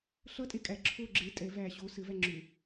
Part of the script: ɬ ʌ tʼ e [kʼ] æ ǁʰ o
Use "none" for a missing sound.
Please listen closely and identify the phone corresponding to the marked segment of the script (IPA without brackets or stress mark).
kʼ